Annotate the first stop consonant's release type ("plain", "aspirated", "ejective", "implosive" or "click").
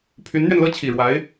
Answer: aspirated